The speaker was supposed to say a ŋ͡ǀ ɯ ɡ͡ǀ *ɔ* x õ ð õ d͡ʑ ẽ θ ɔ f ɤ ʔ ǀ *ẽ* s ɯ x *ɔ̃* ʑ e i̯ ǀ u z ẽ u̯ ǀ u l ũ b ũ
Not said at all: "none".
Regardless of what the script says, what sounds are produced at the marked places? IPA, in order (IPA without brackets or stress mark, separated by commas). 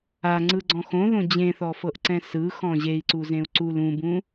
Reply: ɔ̃, ɛ̃, ɔ̃